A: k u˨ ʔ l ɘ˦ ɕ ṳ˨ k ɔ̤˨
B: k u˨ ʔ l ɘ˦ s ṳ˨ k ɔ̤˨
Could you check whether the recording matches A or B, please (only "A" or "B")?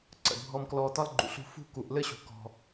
A